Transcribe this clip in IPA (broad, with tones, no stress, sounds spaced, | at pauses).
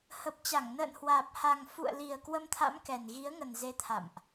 h ə˨˩ p̚ t͡ɕ a˧˩ ŋ n ə̰ː˧˨ n h w aː˨˩ p̚ h a˨˩ ŋ f ṵ˧˨ ə̯ l i˨˩ ə̯ k w ə˧ m t̪ʰ a̰˧˥ m k ɛ˨˩ n ɣ i˨˦ ə̯ ŋ ə˨˩ n z e˨˦ t̪ʰ a̰˧˨ m ʔ